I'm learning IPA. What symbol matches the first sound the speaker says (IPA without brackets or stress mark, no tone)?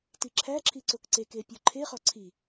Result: t